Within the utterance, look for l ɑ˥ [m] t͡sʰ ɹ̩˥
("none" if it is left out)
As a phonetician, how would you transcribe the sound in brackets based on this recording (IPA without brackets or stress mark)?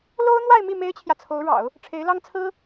ŋ